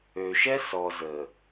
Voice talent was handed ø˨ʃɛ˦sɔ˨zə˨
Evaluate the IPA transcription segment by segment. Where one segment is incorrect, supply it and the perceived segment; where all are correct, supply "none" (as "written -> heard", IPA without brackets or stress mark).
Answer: none